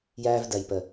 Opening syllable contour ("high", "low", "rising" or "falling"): high